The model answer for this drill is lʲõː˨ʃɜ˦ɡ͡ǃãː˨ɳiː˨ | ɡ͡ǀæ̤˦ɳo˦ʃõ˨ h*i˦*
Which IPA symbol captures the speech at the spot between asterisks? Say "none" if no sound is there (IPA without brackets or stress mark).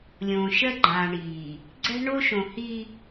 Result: i˦